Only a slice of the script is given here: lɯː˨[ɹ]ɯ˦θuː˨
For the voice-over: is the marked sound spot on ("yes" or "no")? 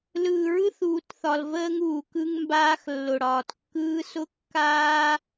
yes